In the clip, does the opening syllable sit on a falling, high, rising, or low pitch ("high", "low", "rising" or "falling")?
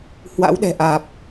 rising